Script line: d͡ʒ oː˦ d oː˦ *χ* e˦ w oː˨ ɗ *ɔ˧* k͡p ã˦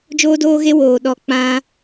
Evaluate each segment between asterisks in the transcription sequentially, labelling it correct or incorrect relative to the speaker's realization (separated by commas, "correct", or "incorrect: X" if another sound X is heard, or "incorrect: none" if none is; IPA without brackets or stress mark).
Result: incorrect: ɣ, correct